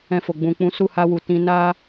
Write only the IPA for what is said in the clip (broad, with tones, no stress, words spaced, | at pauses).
ɛ̃˧ fo˨ ɡ͡bũ˨k͡pũ˨˦ su˦˨ha˧wu˨tĩ˧ na˦